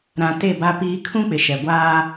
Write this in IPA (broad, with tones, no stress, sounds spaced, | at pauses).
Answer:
ɾ ã˨ t e˦˨ b a˦ p iː˦ kʰ ũ˦ k͡p ɪ˨ ʃ ɛ˨ ɡʷ aː˦